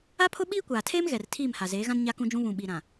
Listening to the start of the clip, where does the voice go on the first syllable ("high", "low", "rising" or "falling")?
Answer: high